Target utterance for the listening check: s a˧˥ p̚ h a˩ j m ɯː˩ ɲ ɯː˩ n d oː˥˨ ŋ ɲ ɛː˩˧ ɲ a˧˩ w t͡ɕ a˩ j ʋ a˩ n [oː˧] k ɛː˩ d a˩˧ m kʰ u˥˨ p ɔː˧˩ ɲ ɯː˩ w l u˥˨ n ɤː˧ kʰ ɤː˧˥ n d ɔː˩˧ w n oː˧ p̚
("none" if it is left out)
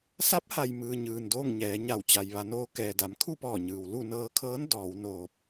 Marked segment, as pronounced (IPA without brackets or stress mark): oː˧